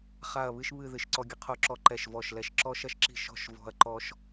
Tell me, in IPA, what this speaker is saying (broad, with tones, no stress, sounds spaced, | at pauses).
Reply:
χ a˥˧ ɐ̯ β ɨ˥ ʃ β ɨ˥˧ ð ɨ˥˧ ʃ ǀ ɔ˥ ɡʲ ə˥ qʰ o˥ ǁ ɔ˥ ǃ ɛ˥˧ ʃ v ɔ˥˧ ʃ l ɛ˥ ʃ ǁ ɔ˥ ʃ ɐ˥ ʃ ǁ i̤˥˧ ʃ ɔ̤˥˧ ʃ v ɔ̤˥ ɐ̯ ǃ ɔ˥ ʃ